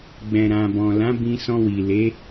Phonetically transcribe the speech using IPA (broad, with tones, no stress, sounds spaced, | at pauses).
ɡ͡b ɛ̃˨ ɾ ã˨ b ɔ̃˨ l ã˨˦ b ĩ˧ s ɔ̃˧ w i˨ l e˨˦